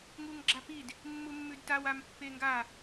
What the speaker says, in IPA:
ŋuŋɡ͡ǁapid | mːumːʉdtaw ampːeŋɡa

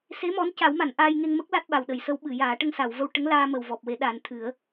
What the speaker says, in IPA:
se˧˥mɔ˧˥nca˨˩˦wma˨˩˨n ʔaː˧jŋe˧ŋ mə˦˥k̚la˦˥t̚ ɓa˨˩wɗə˨˩˨jsə˧˥wɓɨ˨˩˨ jaː˨˩˦ ʈə˧ŋsa˨˩˨wvə˧w ʈə˧˥ŋlaː˧ mə˨˩w vɔ˨˩p̚we˨˩˦ ɗa˨˩˦nt̪ʰɨ˨˩˦ə̯

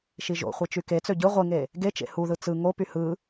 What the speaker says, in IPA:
ʃiʒo̰χʷe t͡ʃyke t͡søɟɯ ʁʷiŋe | ɡet͡ʃḛ huðɯ t͡sɯ ŋopy hɯ

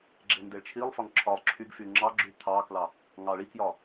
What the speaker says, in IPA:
ɡ͡ǁendeɭt͡ʃʰilˠfɒŋ ǁʰɒlˠ ǁʰyɡfy ŋ͡ǁɑɡ͡ǁy t̪ʰɑklɑ | ŋɑɭikjɒ

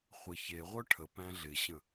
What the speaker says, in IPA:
χʷɪ çeʁʷœ ʈʰə pæ̃ɮɪɕə̃

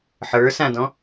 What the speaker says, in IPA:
ħə˞ sãdɔ̃

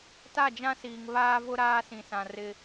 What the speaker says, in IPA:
ta˦˨d͡ʒã˦siː˨ŋ βaː˦vʊ˦ ɾaː˦sĩ˨sã˨ rɪ˦

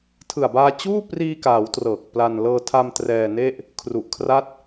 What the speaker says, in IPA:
tʰɯ˨˩a̯baː˧ t͡ɕuː˥˩priː˧kaː˩˦w trɤː˨˩k̚pla˧n lɤː˧tʰa˧m trɛː˧ne˥˩ʔ | kʰru˨˩ʔkʰra˦˥t̚

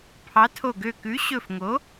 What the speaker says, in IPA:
pʰɑ˨˥tʰo˧˩ɡø˧˩ kʉ˨˥ɕɵ˧˩fŋo˨˥

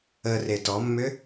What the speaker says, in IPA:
ə retɔmːʏ

